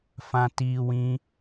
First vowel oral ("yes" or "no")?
no